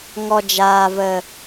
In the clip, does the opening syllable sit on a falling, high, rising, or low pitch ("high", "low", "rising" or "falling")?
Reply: low